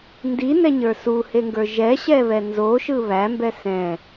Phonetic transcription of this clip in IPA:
n d i n ɛ ɲ ə˞ s u h e ŋ ɡ ə˞ ʒ ɛ ɕ ɛ β ɛ n z o ʃ ɯ β æ m b ɛ s ɛ̃

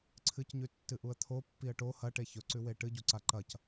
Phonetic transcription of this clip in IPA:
ǀʰ ɨ c ɲ ʉ tː ɨ ʔ u ə̯ t̪ʰ o pː i ə̯ ʈ o h ɐ ʈ e ç ɵ ǀ ʉ w e ʈ ɨ ɟ u ǀ a ǃ ɐ c

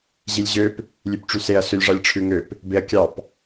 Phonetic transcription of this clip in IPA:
ʑ i lʲ ʑ ø p | lʲ ʉ p ʈ͡ʂ y s e ɐ̯ s ø lʲ ʐ ɑ lʲ ʈ͡ʂʰ ʉ ŋ ø p | b e ɐ̯ kʲ ɑ p

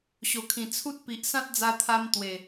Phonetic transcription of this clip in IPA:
ɕ o˨˩ kʰ ĩ˨˩ t͡sʰ u˦ t̚ p i˨ ʔ s ã˦ t̚ d͡z a˧ t̪ʰ a˧ m t̪ w e˨˩

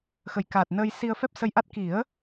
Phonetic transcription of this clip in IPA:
x ə˨˩ j k aː˨˩ t̚ n əː˧ j s i˧ ə̯ f ɛ˦˥ p̚ s ə˧ j ʔ a˦˥ t̚ k i˨˩˦ ə̯

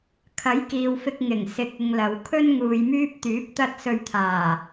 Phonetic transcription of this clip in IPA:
kʰ ɐ˨˥ j k iː˨ w f ɪ˧ k̚ ŋ ɪ˨˩ ŋ s ɪ˧ k̚ ɪ˧ ŋ l ɐ˨˧ w kʰ ɵ˥ n ŋ uː˨ j m yː˥ p̚ t̪ yː˨˥ p̚ t̪ ɐ˥ t̚ s ɵ˧ ɥ t̪ʰ aː˨˩

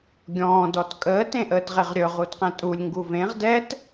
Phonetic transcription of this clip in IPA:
ɡʲ ɔ̃ː d ɔ t kʼ əː t ẽ ʔ əː t ʁ e ʁ ɾʲ ɵ ʁ u d q ɛ̃ tʼ u lʲ ŋ ɡ u v ẽ ʁ d ɛ t

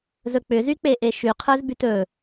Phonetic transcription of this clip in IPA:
z ɵ k͡p ʏ z y k͡p e ʔ e ʃ y qʰ ə˞ z b y t ɵ

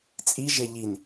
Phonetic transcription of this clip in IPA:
t͡sʼ i ʒ e ʎ i n

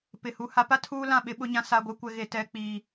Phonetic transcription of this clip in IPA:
p ɪ˨ h u˨ h a˦ p a˦ tʰ uː˦ l ã˦˨ ɓ ɪ˦ ɓ ʊ˦ ɲ ã˦ s a˦ ɡʷ ɛ˦ kʷ ɛ˦ ɣ e˦ t ɛ˦ k͡p iː˦

